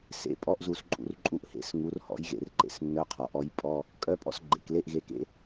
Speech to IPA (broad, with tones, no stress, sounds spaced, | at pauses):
s ḛ˧˥˧ pʼ ɔ˧˥˧ ʔ z u˧˩ s ǃʼ ṵ˧˩ r ǃʼ u˧˥ ʔ h ḛ˩˥ s ŋ u˩˥ r h ɔ̰˩˥ j ɣ ḛ˧˩ r ǃ ḛ˧˩ s nː œ˧˥˧ qʰ ɔ˩ ʔ ɔ˧˥ j pʼ ɔ˧˥˧ | kʼ œ˧˥˧ pʼ ɔ̰˧˥ s ɡ͡ǃ ḛ˩ k l e˧˥˧ ʔ ɣ e˩˥ k ḛ˩˥